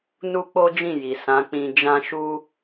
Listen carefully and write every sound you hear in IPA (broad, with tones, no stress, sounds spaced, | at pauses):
n u˦ k͡p o˦ d͡ʒ ĩ˦˨ j i˨ s ã˨˦ k͡p ĩ˧ d͡ʒ ã˦ ʃ u˦